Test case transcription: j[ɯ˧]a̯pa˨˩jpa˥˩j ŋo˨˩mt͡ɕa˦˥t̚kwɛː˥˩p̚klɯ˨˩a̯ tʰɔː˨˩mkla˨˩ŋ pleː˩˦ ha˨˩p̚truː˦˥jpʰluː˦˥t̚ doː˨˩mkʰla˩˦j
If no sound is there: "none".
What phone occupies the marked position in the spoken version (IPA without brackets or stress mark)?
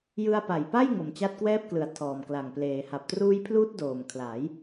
ɯ˧